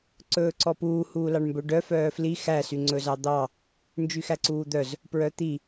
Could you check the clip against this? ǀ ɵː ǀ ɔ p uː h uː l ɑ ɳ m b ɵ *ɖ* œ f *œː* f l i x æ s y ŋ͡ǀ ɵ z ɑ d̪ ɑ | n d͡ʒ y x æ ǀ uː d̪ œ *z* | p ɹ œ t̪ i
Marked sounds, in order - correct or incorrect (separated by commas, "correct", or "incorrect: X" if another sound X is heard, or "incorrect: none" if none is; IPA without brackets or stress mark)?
correct, correct, correct